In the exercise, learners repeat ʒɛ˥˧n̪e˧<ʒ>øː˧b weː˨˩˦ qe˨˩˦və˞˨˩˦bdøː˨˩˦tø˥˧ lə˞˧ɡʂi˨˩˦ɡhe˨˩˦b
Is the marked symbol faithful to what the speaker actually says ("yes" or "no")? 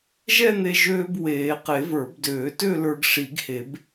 yes